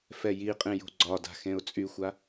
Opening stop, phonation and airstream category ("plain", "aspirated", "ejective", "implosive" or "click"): ejective